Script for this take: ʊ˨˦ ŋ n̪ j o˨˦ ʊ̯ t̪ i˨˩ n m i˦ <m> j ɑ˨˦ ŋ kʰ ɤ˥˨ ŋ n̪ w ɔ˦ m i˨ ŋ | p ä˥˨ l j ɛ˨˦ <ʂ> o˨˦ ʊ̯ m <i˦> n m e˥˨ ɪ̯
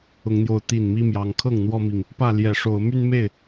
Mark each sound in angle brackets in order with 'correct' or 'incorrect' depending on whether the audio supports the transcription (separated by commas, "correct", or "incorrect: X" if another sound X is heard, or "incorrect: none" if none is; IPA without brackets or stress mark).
correct, correct, incorrect: y˦